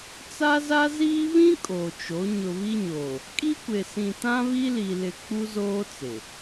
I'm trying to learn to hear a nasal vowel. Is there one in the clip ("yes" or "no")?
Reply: yes